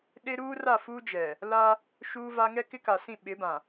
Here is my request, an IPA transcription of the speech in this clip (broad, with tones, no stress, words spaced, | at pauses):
ɗe˦ ɾuː˦ra˦˨ fuː˦d͡ʒɛ˨ | la˦ | ʃuː˦va˦ ŋɛ˦kɪ˦ka˨sĩ˦˨ ɓɪ˨˦bã˨